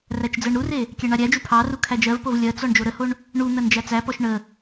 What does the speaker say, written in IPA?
ræt͡ʃd͡zɜɳɾure | kʲæɳɑɾʲæd͡ʒu pʰɑru kʰæd͡ʒɜvpov lʲɜt͡sɔɳ d͡ʒoɾəhoɳ | ɳu n̪ɜnd͡ʒæt͡sæpɔʃ ɳə

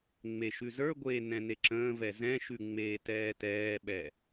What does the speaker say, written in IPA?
ŋ͡meʃʉzə˞ɡʷeː nɛ̃neǁə̃ːvɛ zɛ̃ʃʉ ŋ͡meːtɛːtɛːɓɛ

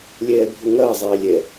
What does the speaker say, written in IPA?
lʲɛːbʱʊŋɐː zˤeːlʲɛ

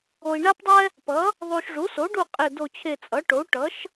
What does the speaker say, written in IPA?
o˨i̯ɳa˥pdˤɛ˥ | pʌ˩˥ | ðˤu˨ʃ ʐu˩˥so˩˥ɖu˦˨ qʼe˦˨do˦˨t͡ɕʰe˦˨ t͡sʼʌ˩˥ʈo˩˥u̯ʈʌ˩˥ʃ

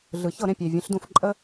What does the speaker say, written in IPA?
ɮɯ˩çɤ˥˩ɾẽ˧pʲe˩ vʲə̃˩˥ɬdũ˥˩fǃʼə˥

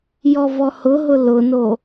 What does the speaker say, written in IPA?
jɔvɔhʊɦʊ lʊno

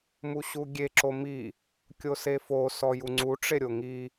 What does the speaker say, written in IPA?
muɕuɡʲe ǁomi | kʲosefo sɔjuŋ͡ǀu ʈ͡ʂeɾʲoŋi

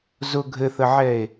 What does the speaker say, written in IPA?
zʊ ɡʱɘθəʕɛe̯

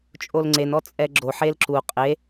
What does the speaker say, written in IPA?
t͡ʃʼolŋ͡ǀen ɔt͡sʼɛɡ͡ǁoħ elǁu qʼe

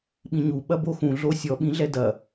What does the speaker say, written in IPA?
ɓĩɲu ɓɐboxũ ɮosʲɔ ɓĩɮɛdɐ

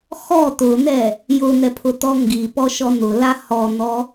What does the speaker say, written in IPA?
xɔ t̪ʊn̪ɛ | jʊn̪ɛpʰʊt̪ɔ ŋɡipɔʃɔ n̪ʊla hɔn̪ɔ

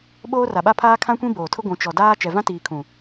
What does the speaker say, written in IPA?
ɓoː˦ra˨ɓa˦ pʰaː˦kʰã˦kʷĩ˦ boː˨tʰʊ˦ ɡʷũ˨t͡ʃɔ˨daː˦ t͡ʃɛ˨vã˦tiː˨kʰũ˨

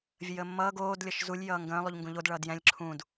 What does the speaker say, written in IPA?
vʲəjəːmːʌː ɡoːd lʲʌʃzulʲ jʌːŋɡə̃ː lˠuʎŋɡũʎod ɭʌːdjɛ̃lʲ ǁʰũd

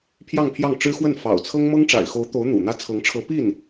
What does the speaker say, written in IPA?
pʰjɑ˥˧ŋpʰjɑ˥˩ŋ ʈ͡ʂɻ̩˥xwə˥˩n fɑ̰˨˩ʊ̯t͡sʰɤ˥ŋmɤ˥ŋ ʈ͡ʂa̰˨˩ɪ̯xo˧˥ʊ̯t̪o˧˥ʊ̯ n̪ṵ˨˩n̪ä˥ t͡sʰɤ˧˥ŋʈ͡ʂʰɤ˧˥pi˥˩n

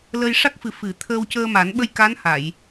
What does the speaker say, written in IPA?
lə˧jʂa˦˥k̚fɨ˨˩˦ fɨ˨˩˦ t̪ʰəː˧wcəː˧ma˨˩˦nɓə˧j ka˧˥n ha˨˩˨j

